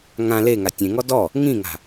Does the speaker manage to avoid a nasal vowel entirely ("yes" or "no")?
no